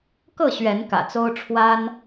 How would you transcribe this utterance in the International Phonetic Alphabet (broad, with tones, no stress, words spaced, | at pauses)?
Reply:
kɤ˥˨ɕɥɛ˨˦n kä̰˨˩t͡so˦ʊ̯ ʈ͡ʂʰwa˦n